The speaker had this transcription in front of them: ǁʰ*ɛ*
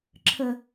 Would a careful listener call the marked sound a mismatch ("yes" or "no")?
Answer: yes